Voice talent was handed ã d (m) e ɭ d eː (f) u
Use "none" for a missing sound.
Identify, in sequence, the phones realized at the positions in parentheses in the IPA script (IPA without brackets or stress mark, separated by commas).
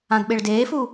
ɓ, f